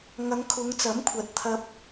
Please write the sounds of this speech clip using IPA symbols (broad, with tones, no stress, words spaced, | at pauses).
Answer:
ŋɐ˨˧ŋ kʰʊ˨˧ŋt͡sɐ˨˥mkʷʰɐ˨t̚ t̪ʰɐ˧p̚